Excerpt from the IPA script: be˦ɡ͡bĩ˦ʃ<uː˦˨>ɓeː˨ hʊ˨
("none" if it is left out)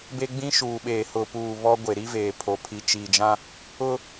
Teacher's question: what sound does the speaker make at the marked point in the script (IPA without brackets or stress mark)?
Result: uː˨